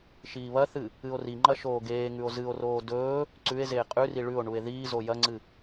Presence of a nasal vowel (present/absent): absent